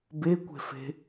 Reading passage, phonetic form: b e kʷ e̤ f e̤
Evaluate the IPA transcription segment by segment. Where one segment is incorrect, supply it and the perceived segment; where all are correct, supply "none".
none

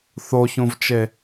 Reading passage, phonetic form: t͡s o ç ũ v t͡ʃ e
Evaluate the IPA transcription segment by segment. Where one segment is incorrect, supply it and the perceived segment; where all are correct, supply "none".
t͡s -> θ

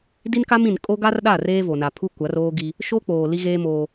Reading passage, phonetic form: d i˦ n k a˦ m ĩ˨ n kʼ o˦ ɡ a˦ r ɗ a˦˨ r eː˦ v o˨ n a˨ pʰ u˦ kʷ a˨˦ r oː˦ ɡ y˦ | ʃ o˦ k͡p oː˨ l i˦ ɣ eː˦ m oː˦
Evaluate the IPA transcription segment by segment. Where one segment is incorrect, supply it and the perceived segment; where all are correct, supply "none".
y˦ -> i˦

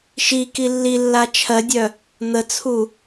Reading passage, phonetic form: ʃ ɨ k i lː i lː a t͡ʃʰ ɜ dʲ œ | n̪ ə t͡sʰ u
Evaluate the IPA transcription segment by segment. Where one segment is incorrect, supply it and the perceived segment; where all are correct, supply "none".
ɨ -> i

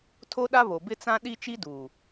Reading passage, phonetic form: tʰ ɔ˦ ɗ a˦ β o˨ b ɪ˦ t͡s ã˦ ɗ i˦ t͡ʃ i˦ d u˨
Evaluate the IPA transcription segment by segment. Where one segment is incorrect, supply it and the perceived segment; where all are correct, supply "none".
ɔ˦ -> o˦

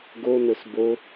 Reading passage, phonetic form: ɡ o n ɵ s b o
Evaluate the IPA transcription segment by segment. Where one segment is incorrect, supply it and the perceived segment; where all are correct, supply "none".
none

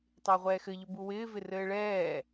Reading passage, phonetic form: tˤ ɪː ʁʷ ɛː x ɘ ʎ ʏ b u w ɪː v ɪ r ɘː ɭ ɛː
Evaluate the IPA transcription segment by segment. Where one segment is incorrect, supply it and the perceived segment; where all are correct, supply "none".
none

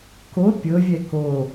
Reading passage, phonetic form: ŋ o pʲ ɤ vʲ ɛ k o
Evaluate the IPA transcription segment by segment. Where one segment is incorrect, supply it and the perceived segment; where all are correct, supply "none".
ŋ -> k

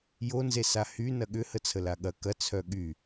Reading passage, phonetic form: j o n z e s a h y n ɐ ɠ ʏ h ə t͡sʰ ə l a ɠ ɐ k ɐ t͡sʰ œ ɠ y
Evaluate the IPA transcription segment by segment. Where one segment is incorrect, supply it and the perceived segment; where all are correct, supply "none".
none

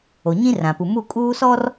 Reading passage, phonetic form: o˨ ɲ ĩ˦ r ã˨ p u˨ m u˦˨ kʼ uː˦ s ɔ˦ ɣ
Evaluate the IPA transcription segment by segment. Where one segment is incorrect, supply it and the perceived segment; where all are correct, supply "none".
ɣ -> r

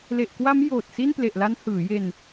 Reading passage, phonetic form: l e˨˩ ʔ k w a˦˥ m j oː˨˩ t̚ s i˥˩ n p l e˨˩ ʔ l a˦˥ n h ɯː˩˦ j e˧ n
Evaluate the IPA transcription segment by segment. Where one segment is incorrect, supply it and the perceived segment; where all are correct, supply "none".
none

